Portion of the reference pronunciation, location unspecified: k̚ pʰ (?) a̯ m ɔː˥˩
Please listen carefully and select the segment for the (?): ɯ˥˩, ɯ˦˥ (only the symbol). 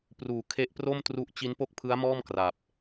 ɯ˦˥